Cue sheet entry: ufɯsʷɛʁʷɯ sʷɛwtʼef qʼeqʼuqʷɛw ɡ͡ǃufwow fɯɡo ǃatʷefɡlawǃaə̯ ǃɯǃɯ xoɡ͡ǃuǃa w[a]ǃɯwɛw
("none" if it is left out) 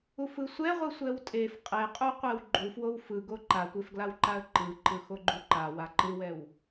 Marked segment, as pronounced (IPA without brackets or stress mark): a